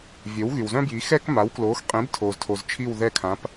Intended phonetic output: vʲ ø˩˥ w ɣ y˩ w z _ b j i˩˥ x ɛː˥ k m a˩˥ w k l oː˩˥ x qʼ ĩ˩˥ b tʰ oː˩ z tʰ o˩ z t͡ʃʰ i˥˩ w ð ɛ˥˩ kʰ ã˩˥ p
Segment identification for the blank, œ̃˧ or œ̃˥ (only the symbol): œ̃˥